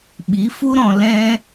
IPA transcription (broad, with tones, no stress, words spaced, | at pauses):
ɓi˨˦fu˦ɾɔ̃˧ lɛ̃˦